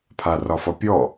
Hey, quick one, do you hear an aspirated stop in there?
yes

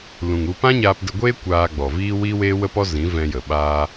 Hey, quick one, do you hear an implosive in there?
yes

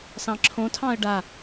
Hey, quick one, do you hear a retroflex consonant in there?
yes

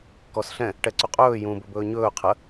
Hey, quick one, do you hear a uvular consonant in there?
yes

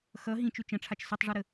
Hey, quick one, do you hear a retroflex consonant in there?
yes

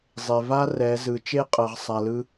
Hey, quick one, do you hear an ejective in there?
yes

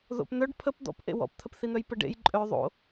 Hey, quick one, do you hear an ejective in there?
yes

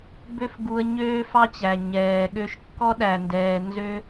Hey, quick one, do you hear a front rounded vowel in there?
yes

